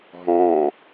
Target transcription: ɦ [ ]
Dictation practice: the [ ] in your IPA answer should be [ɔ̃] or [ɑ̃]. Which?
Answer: ɔ̃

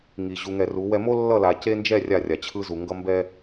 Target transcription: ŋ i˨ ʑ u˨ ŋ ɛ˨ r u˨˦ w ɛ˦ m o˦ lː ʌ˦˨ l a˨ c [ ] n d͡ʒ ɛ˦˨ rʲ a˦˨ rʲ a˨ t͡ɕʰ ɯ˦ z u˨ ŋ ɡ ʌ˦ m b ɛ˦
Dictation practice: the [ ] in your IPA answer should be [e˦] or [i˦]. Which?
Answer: e˦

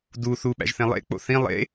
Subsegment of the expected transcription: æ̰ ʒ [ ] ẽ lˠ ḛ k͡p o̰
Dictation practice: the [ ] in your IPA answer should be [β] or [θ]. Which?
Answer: θ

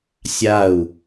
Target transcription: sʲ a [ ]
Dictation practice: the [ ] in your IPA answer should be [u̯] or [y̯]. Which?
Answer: u̯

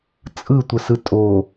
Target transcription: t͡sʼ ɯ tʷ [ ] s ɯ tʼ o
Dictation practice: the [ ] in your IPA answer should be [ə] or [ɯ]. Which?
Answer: ə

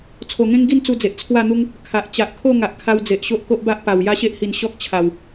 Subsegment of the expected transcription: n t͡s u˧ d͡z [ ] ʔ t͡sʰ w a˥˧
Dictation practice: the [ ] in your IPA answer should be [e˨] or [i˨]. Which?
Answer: e˨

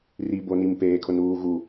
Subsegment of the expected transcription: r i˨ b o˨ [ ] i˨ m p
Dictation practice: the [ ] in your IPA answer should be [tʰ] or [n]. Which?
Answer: n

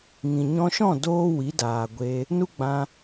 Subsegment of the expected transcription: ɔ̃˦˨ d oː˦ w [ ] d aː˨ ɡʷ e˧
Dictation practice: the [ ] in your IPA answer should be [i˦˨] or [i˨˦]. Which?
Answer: i˨˦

